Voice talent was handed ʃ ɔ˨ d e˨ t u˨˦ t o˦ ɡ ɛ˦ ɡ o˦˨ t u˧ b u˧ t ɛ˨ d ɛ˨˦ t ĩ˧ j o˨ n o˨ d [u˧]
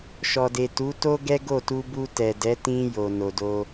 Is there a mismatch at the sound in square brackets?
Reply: yes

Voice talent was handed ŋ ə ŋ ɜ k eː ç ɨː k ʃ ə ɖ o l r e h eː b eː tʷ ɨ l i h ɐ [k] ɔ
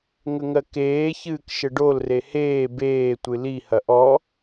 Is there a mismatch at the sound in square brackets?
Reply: yes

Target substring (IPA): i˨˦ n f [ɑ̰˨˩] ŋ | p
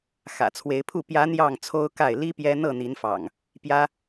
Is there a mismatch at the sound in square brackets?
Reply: no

